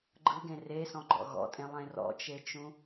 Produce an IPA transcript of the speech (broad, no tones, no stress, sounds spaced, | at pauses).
ɡ͡ǃ ɯ ɡ ẽ r e s ɔ̃ ɡ͡ǃ ɔ̰ ɣ ɔ̰ tʼ ẽ lˠ ẽ r ɔ̰ t͡ʃ e t͡ʃ ũ